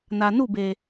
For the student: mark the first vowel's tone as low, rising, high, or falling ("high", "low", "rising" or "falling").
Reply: low